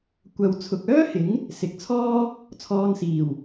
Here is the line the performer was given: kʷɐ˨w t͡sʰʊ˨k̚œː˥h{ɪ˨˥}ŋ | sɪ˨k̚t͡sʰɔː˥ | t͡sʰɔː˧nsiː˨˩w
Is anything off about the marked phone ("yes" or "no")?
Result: no